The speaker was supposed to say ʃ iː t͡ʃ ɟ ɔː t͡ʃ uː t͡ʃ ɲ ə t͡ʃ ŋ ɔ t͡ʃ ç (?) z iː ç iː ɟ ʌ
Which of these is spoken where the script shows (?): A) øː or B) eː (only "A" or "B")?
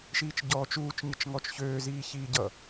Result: A